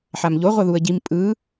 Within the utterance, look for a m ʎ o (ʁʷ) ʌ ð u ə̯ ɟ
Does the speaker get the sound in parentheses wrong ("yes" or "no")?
no